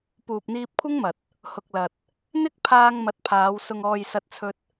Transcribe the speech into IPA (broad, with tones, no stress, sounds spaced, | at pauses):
p uː˨ p̚ n̪ iː˧ p̚ kʷʰ ɐ˥ ŋ m ɐ˨ t̚ | h ʊ˨ k̚ l ɐ˨ t̚ | n̪ ɪ˥ k̚ pʰ aː˧ ŋ m ɐ˨˥ t̚ pʰ aː˨˧ w s ʊ˧ ŋ ɔː˧ j s ɐ˥ t̚ t͡sʰ ɵ˥ t̚